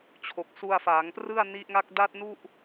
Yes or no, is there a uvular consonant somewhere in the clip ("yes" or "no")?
no